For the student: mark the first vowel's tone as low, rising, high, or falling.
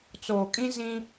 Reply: low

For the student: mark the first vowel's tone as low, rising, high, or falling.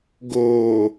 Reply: low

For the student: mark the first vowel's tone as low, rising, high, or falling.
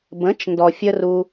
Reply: rising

